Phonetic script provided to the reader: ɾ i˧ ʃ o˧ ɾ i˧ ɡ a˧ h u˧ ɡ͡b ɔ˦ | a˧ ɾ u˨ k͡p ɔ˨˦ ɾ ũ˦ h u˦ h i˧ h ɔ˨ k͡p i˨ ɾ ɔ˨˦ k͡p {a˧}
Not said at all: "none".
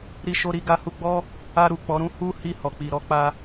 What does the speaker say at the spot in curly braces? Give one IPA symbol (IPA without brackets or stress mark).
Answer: a˧